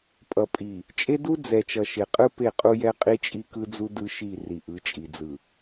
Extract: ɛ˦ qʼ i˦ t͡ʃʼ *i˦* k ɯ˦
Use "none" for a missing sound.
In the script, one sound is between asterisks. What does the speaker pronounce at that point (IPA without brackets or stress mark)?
i˦